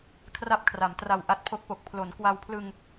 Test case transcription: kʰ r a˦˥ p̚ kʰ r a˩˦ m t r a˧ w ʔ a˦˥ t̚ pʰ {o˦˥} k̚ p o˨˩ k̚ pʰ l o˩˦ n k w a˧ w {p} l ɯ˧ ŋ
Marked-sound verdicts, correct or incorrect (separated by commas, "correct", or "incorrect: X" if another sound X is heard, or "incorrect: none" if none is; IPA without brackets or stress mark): correct, incorrect: pʰ